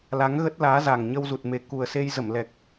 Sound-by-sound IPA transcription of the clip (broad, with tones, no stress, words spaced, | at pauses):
la˨˦ŋɣə˦˥t̚laː˨˦za˨˩ŋ ɲə˧wzu˨˩t̚me˨˩ ku˨˩ə̯se˧j zə˧˩mlɛ˨˩k̚